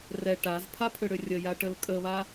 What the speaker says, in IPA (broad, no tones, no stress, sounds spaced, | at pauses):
r ɛ ʈ a z pʰ a pʰ ʏ ɽ ʏ rʲ ə j a ʈ ə l kʼ ə β a